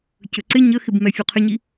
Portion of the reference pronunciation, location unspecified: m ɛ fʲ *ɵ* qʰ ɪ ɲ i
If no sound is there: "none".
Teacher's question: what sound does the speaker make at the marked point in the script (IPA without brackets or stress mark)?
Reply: o